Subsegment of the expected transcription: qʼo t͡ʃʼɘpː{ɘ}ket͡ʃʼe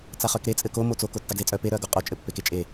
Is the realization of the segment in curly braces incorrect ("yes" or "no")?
yes